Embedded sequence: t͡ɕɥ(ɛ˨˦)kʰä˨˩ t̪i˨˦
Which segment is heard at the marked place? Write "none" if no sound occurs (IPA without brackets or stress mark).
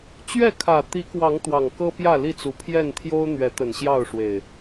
ɛ˥˨